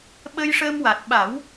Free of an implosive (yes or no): no